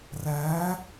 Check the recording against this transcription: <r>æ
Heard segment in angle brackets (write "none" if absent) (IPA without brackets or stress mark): r